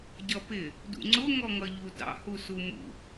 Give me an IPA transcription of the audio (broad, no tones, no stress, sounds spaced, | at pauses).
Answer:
ɟ ʌ p ɪ | d ṵ ŋ͡ǀ ʊ ŋ ɔ ŋ ʌ ʎ u d ɑ̰ h u s u m ṵ